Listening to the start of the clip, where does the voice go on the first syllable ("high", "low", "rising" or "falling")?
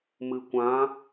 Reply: low